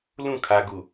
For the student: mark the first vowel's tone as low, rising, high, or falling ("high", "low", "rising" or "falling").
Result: falling